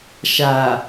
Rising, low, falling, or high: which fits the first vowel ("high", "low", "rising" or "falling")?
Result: low